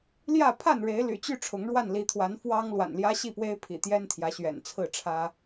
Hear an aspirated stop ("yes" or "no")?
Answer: yes